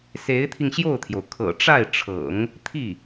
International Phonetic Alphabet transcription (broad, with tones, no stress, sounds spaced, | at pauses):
s e˧˥ ɪ̯ t̪ʰ i˧ ŋ ɕ j o˥˩ ʊ̯ t̪ʰ j o˩ ʊ̯ kʰ ɤ̰˨˩ ʈ͡ʂ a˥˩ ɪ̯ ʈ͡ʂʰ ɤ̰˨˩˦ ŋ | t̪ʰ i˥˩